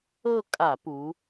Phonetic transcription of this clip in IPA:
ɤ˥˧ kʼ a˧˩˧ p u˩˧

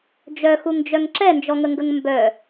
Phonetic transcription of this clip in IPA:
d͡ʒ œ x u ŋ d͡ʒ œ ŋ ǁ ɛ n d͡ʒ ɔ ŋ ə ŋ ɡ ə ŋ m b œ

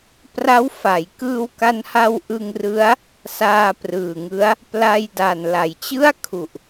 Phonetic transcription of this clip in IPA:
p r a˦˥ w f a˩˦ j k ɯː˧ w k a˧ n h a˧ w ʔ ɯ˧ ŋ r ɯ˦˥ a̯ | s aː˧ p r ɯː˨˩ ŋ ɯ˦˥ a̯ | p l a˧ j d a˨˩ n l a˩˦ j t͡ɕ ɯ˥˩ a̯ kʰ u˨˩ ʔ

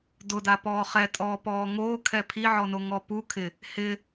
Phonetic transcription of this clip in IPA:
d ʊ d a p ɔː χ ɛ tʼ ɔː p ɔː ŋ oː kʰ ɛ pʰ i ʕ ɔ n o ŋ ɔ p u kʰ ɪ | h ɪ

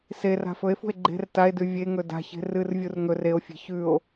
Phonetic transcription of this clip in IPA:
s e r a̤ f ɵ e̯ f ṳ e̯ ɡ͡ǃ e̤ r t a e̯ d ʉ vʲ e ŋ ɵ d a̤ ç e̤ r ɨ r vʲ u r ŋ ɵ r e o̯ fʲ e̤ ç ʉ o̯

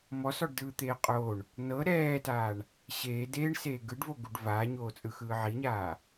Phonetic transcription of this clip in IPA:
m ɔ s ɔ ɖ d ɯː t̪ eː qʼ o ɳ | n ɤ ɾ ɛː t aː ɳ | ɕ eː d eː ɳ s eː ɡ ɯ ɖ v o ɡ u ɖ v aː ɲ oː t͡sʼ ɯ x ɯː ʕ i ɲ aː

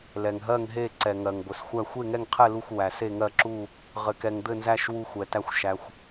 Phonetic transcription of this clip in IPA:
l ɛ˩ ŋ ɦ ɜ˦˨ ŋ ɦ e˦˨ ǀ ɛ˩ ŋ ɜ˩ ŋ ɡʷ ɘ˩ s xʷ æ˦˨ xʷ e˦˨ ŋ ɛ˦˨ ŋ qʰ ɛ˦˨ l u˦˨ xʷ w æ˩ s e˦˨ ŋ ɜ˦˨ ǁ u˦˨ | ʁ ɘ˩ k ɛ˩ ŋ d̪ ɘ˦˨ n z æ˦˨ ʃ w u˦˨ xʷ ɛ˩ t æ˦˨ xʷ ʃ æ˩ xʷ

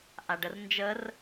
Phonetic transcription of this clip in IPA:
ʔ a ɖ ə r n d͡ʒ ə r

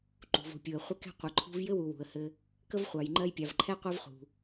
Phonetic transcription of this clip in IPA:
ǃ ṳ˩ v o̤˨ pʲ u˩ ə̯ χʷ ɘ˦ k ɛ̤˦ qʷ ɘ˨ ǃʰ ṳ˦ v j ɘ˥ w u˨ w ṳ˩ ə̯ h ɘ˨ | k ə˥ v χʷ ɑ˨ j ŋ͡ǃ ɜ˦ j pʲ ɑ˨ v ǃʰ ɛ˥ qʷ ɜ˦ v χ ṳ˩

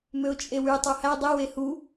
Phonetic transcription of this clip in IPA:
m ø ʊ̯ t͡ʃʼ e w y tˤ o h æ dˤ e w e h u

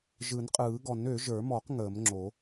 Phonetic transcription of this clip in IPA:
ʒ ɯ˨˩˦ n qʼ ɯː˨˩˦ ɡ ɔ˨˩˦ n ø˨˩˦ ʒ ə˞˨˩˦ m ɔ˨˩˦ q ŋ əː˨˩˦ m ŋ͡ǁ o˨˩˦

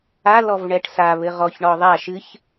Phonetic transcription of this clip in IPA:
a l ɔ v ɳ ɛ ʈ s a β ɘ ʁ ɔ ç ɳ ɔ ðˤ a ʃ ɨ ç

